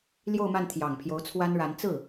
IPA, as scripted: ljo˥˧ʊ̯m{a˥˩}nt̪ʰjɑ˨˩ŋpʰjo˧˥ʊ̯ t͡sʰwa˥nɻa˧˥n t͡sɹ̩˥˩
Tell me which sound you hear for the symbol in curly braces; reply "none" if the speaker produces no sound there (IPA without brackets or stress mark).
a˥˩